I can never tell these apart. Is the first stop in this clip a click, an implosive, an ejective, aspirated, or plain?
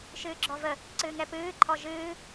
click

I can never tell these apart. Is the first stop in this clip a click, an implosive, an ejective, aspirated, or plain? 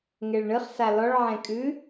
ejective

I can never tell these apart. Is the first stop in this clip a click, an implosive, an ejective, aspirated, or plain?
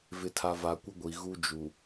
aspirated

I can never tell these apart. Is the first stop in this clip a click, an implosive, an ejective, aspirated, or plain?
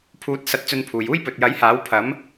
aspirated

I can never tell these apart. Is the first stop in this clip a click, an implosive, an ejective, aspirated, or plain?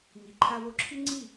click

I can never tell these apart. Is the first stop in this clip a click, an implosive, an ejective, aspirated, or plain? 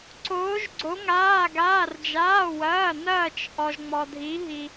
click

